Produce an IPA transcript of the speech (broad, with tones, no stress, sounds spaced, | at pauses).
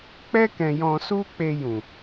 k͡p ɛ˦ k ɛ̃˧ j ɔ̃˧ s u˦ k͡p e˧ j ũ˨